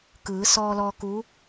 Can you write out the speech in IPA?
k ɯː˩˧ s ɔː˧ l ɔː˧ k u˧˥

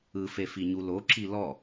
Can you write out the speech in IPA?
ɯ f e f i ɲ u l o ǁ i l ɔ

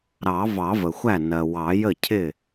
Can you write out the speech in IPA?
ɾ ɑ˨˩˦ v ɑ˨˩˦ v ə˩ xʷ æ˥˩ n ɜ˩ w ɑ˨˩˦ j ə˥˩ cʰ ɪ˥˩

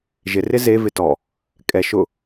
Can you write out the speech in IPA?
ʒ ɪ r ɪ z e v ɪ t ɔ | kʼ ɛ ʃ ʊ

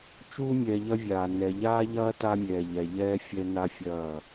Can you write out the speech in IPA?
t͡ʃ uː˦ mʲ ɛː˨ ʎ ɐ˦ vʲ aː˨ n ɛ˨ ʎ aː˦ ʎ ɐː˦ t a˦ mʲ ɛː˨ ʎ ɛ˨ ʎ ɛː˦ fʲ ɛ˦ n a˦ fʲ ɐː˦˨

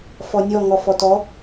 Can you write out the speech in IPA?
f ɔ nʲ ɔ ŋ ɔ f ɔ t ɔ

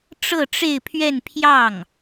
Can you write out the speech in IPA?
ʈ͡ʂ ɤ˥˧ ʈ͡ʂ e˥˧ ɪ̯ pʰ ɥ ɛ˥˧ n pʰ j ɑ˥˩ ŋ

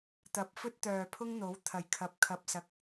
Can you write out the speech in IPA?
t̪ ɐ˨˥ p̚ f ɵ˥ t̚ t̪ œː˨ pʰ ʊ˥ ŋ n̪ o˨˥ w t̪ʰ ɐ˨˩ j kʰ ɐ˨˥ p̚ kʰ ɐ˨ p̚ s ɐ˨˥ k̚

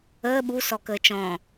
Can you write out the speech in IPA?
əː ɓ u s ɔ k əː t͡ʃ ɔ̃

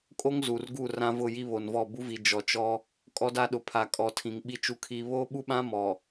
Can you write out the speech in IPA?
kʼ o˦ ŋ z u˨ r ɡ u˦˨ r ã˦ v ʊ˦˨ j i˦ β o˨ n v ɔ˦˨ b u˦ v i˨ d͡ʒ ɔ˨ t͡ʃ ɔ˦ | kʼ ɔ˦ d a˦ ɗ ʊ˨ pʰ a˨ kʼ ɔ˨ tʰ ĩ˨ ŋ ɓ i˦ t͡ʃ u˦ kʰ iː˦ β oː˦ ɓ u˦ ɓ ã˦ m ɔ˨

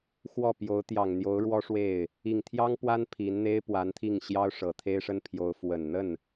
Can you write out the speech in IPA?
x w ɔ˥˩ p j o˧˥ ʊ̯ t̪ j ɑ˨˩ ŋ n̪ j o˧˥ ʊ̯ ɻ w ɔ˥ ʂ w e˥˩ ɪ̯ | i˨˩ ŋ t̪ʰ j ɑ˥ ŋ p w a˥ n pʰ i˧˥ n n̪ e˥ ɪ̯ p w a˧˥ n t̪ʰ i˥˩ ŋ ɕ j ɑ˥ ʊ̯ ʂ ɤ˨˩ t̪ʰ e˥ ɪ̯ ʂ ə˥ n pʰ j o˧˥ ʊ̯ f w ə˨˩ n n̪ ə˥˩ n

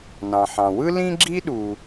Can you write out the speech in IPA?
n ɑ̃˩ ħ ɑ̃˩ w ɯ˥ l ĩ˥ ɡ͡ǁ i˥ ɗ u˩

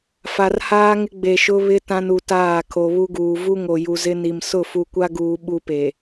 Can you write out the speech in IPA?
f a˨ r h aː˦ ŋ ɪ˦ ɡ͡b e˨ ʃ ʊ˦ β ɪ˦ t ã˦ n u˨ t aː˦˨ kʰ o˨ β u˦ ɡ uː˨ v u˦ ŋ o˨ j u˨ z ɪ˦ n i˨ m s ʊ˦˨ f u˨ kʷ a˦ ɡ uː˨ ɓ u˦ p e˨

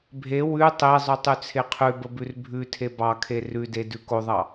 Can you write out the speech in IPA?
bʱ e w ʉ tˤ e zˤ ʉ tˤ ʉ t͡sʰ e qʰ ʉ b ə b ʉ r bʱ ʉ tʰ e b ɑ kʰ e r ʉ d e d ʉ k o ðˤ ɑ

